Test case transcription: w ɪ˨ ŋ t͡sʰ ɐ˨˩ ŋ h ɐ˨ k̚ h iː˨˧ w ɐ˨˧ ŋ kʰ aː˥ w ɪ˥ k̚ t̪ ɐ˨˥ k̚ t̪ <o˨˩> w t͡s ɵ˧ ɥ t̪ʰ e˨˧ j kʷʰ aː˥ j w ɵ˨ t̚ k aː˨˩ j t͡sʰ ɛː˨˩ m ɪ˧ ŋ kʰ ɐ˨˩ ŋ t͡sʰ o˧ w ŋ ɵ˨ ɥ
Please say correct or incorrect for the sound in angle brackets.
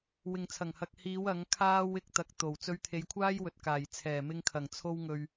correct